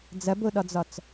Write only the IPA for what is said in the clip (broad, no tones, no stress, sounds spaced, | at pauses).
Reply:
d͡z ɐ b o ɗ ɒ d͡z ɒ t͡s